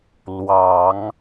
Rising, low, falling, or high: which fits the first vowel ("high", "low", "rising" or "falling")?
low